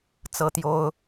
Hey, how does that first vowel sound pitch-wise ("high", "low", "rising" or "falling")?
high